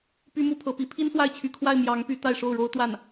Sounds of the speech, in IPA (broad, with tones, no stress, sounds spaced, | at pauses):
p y˥ m u˥ pʰ ɤ˧˥ p i˧˥ pʰ i˥ n s w a˥˩ ɪ̯ t͡ɕʰ y˧˥ kʰ w a˥˩ ɪ̯ m j ɑ˧˥ ŋ p y˧˥ t̪ a˥˧ ɪ̯ ʂ o˥˩ ʊ̯ ɻ o˥ ʊ̯ t̪ w a˥˩ n